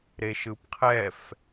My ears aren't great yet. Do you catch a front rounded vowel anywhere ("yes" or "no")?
no